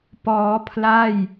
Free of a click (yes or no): yes